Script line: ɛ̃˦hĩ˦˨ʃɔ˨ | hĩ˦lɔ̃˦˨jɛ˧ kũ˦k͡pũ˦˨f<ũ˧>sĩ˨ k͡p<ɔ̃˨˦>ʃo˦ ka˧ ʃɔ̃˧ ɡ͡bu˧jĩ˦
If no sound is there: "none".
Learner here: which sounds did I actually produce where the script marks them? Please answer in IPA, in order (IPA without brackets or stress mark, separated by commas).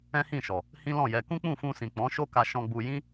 ũ˧, ɔ̃˨˦